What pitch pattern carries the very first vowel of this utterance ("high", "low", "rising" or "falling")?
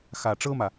low